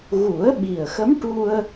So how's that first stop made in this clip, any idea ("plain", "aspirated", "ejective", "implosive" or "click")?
implosive